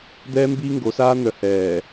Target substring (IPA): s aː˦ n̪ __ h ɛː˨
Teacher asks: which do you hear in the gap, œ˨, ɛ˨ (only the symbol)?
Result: œ˨